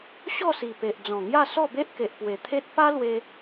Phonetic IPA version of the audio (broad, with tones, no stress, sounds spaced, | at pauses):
ɕ ɔ˥˧ s i˨˩ p e˨ ʔ d͡z ɔ̃˨˩ ŋ j a˥˧ s ɔ˥˧ b e˦ ʔ k e˨ ʔ p w e˨˩ t̪ʰ e˦ t̚ p a˦ l w e˧